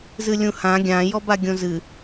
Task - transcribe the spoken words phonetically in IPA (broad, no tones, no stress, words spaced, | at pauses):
zɨlʲũhã ɡʲã jɔbaɡʲõzɨ